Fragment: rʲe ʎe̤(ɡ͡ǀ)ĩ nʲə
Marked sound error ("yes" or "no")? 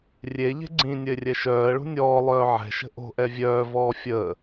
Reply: no